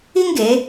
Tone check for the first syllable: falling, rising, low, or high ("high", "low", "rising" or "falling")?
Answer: high